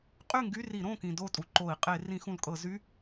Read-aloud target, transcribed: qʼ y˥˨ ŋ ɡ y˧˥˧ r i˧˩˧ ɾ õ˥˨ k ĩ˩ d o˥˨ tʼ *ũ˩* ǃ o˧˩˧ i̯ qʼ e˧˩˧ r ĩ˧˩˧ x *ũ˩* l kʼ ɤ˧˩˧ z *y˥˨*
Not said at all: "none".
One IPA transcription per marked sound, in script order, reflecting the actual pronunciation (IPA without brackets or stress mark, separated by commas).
u˩, ũ˩, y˧˥˧